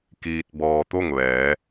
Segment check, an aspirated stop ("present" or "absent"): absent